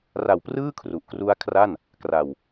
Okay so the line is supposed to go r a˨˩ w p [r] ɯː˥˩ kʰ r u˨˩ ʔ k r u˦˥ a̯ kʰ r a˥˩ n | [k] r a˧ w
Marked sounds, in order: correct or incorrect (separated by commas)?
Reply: correct, correct